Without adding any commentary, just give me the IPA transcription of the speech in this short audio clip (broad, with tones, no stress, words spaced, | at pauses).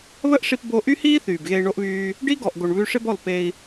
βə˦ʔʂi˧p bo˧ʔy˦hiː˦ θyː˨bɣe˧i̯ɳo˦ʔβyː˦ | ɖi˦ɡɔ˨ʔɡo˨ɳ βʉ˧ʂɪ˦bɔ˦˨l pe˧i̯